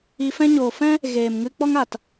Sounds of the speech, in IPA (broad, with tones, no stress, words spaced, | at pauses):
i˧fɛ̃˦ ɲoː˨fɛ̃˦ | ɣeː˨m ŋɨ˧k͡pɔ˦ŋ a˨t